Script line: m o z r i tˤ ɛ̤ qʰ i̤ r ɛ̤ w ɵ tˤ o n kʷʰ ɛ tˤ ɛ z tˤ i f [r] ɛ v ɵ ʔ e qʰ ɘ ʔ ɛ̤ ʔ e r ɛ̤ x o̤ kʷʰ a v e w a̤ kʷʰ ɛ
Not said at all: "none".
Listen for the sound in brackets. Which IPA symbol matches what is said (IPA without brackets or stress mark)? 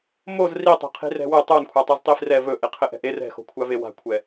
r